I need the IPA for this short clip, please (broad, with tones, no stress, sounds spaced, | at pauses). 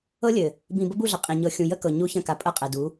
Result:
ɤ˦ lʲ ɘ˨ | b ĩ˨ b ə˦ b u˦˨ ɮ ɐ˨ qʼ ĩ˨ ɲ ɤ˨ xʲ ũ˨ j ə˦ k ɤ˨ ɲ u˦ ç ɐ̃˦˨ k a˨ pʼ ɐ˦ qʼ ɛ˨ d u˨˦